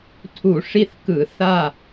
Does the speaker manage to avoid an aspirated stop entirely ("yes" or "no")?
no